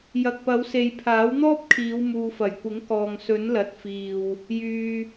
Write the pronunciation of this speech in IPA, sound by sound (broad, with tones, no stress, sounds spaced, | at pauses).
j ɐ˨ k̚ p ɐ˨˧ w s e˨ j pʰ aː˨˥ w n̪ ɔː˥ p̚ kʰ iː˨˧ w m uː˨ f ɐ˨˩ j kʷ ɪ˨˥ ŋ k ɔː˨ ŋ s ɵ˨˥ n l ɐ˨˥ t̚ f iː˨ w | j yː˧